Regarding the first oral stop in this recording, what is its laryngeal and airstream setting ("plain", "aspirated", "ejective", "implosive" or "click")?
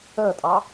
ejective